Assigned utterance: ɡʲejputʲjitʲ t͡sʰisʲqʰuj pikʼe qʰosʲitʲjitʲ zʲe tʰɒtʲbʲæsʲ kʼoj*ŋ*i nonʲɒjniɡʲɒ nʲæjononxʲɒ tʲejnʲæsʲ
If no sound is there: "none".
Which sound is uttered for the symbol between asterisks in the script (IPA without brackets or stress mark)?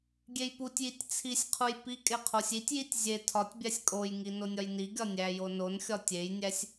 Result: ŋ